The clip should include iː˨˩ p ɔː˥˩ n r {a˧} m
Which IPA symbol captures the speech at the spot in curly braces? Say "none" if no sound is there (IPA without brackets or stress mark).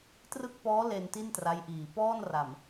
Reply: a˨˩